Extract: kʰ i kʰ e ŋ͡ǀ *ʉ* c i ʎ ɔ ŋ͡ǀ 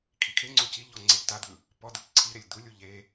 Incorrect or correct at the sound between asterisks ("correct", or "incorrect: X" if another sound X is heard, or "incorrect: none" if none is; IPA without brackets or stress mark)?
incorrect: u